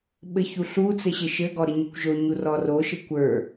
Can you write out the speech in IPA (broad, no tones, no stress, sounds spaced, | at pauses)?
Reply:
ɓ ɘ ç u ɬ u t͡s ɘ ɕ ɘ ʃ ɘ ɡ ɔ ɾ ə ɲ ə kʷ ʒ o ɲ u r ɔ r o ʃ ɘ kʷ ə˞